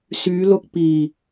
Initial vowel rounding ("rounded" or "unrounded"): rounded